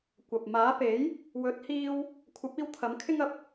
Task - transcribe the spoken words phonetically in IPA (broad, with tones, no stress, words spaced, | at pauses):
kʷɐ˨p̚ maː˨˥pe˨˥j | wɵ˨˥t̚hiː˧w | kʷʰɐ˨˥p̚iː˧w t̪ʰɐ˨˥mkʰɪ˥ŋ ɐ˨p̚